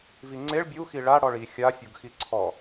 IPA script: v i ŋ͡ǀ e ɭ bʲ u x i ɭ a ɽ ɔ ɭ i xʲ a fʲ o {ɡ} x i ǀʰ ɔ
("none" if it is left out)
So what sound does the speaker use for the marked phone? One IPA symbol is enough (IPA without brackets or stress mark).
ɡ